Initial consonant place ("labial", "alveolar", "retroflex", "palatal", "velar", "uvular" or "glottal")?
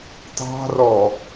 alveolar